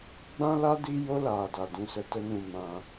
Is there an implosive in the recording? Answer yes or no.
no